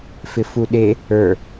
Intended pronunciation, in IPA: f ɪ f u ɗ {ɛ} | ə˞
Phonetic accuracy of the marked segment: incorrect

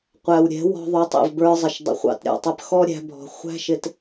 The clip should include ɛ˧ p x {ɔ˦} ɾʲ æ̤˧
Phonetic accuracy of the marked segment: correct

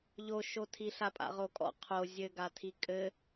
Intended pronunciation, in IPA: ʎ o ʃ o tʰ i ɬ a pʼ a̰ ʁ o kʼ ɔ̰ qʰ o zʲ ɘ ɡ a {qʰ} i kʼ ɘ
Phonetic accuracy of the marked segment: incorrect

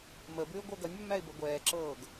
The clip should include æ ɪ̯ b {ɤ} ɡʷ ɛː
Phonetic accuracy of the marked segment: correct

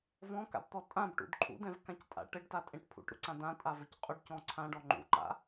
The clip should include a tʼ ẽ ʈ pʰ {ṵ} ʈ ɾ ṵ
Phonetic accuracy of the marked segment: correct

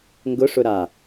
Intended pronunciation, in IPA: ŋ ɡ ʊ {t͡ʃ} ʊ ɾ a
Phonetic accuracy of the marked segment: incorrect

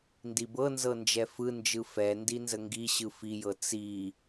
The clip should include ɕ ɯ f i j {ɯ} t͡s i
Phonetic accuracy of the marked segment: incorrect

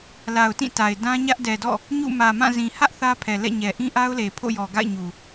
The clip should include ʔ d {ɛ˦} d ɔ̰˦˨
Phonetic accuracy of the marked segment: incorrect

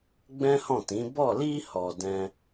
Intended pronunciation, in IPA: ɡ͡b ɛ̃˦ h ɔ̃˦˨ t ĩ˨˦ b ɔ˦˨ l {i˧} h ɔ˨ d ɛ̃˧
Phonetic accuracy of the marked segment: correct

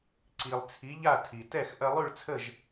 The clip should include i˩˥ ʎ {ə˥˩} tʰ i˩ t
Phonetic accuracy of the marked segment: incorrect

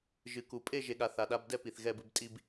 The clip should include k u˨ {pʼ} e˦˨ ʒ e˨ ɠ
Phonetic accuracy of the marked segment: correct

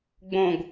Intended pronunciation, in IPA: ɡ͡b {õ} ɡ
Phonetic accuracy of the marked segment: correct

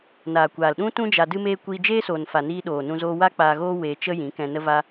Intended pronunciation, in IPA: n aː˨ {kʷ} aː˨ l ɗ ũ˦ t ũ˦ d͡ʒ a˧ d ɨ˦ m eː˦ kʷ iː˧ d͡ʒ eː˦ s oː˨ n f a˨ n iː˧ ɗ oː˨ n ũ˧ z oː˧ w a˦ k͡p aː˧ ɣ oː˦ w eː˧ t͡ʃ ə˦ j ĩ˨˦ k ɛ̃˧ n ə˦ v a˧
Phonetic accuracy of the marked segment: correct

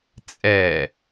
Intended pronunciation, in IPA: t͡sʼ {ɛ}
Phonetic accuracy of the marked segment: correct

